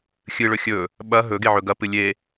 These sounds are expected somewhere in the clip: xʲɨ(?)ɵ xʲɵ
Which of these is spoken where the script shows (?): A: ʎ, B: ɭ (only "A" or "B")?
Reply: B